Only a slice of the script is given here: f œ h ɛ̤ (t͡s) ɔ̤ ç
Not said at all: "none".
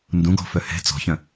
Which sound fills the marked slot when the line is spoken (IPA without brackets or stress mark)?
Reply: t͡s